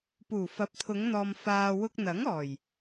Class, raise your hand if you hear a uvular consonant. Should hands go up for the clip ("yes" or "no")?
no